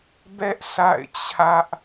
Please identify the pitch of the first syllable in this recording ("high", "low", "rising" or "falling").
high